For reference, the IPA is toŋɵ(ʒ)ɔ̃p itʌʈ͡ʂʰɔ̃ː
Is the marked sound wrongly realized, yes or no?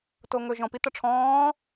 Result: no